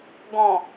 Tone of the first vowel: low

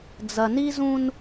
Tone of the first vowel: low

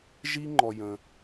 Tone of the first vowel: high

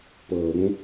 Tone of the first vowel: rising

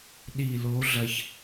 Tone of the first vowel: low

